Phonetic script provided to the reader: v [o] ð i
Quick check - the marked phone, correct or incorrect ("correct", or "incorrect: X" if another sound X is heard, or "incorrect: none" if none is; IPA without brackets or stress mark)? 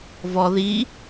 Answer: incorrect: ɔ